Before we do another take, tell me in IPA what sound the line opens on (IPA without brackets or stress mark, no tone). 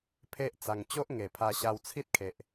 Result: pʰ